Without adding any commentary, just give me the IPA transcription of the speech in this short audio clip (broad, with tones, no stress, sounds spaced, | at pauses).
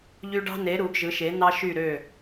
ʎ y˦ ɖ ɑ̤˦ n e˩˥ ɾ u˩˥ ɡ ʒ ɯ˩˥ ʃ e˩˥ n̪ ɑ˦ ʃ y˧˩ ɾ ø˧˩